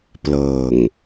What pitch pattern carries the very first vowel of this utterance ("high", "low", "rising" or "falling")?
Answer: low